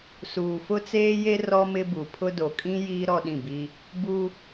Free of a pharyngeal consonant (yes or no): yes